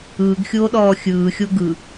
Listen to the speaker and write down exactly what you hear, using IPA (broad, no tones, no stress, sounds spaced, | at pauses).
ɯː ɡ xʲ oː ɗ ɔː xʲ ɯː xʲ o ɡ ɯ